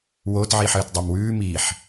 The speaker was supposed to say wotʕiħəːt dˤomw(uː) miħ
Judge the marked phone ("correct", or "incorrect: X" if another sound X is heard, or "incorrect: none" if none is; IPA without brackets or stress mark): incorrect: ʉː